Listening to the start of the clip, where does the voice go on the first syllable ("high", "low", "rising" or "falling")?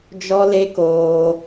high